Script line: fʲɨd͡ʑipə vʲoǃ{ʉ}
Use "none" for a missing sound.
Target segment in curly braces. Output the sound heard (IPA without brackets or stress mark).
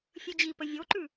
ʉ